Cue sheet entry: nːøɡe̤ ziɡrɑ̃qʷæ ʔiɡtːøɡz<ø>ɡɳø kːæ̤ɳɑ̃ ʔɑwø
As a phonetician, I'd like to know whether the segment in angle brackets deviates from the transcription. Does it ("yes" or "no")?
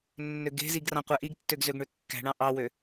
no